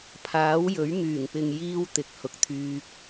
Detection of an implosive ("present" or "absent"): absent